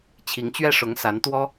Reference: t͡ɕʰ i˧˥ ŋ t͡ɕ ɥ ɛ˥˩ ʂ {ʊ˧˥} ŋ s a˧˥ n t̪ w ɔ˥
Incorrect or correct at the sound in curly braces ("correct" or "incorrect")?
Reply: correct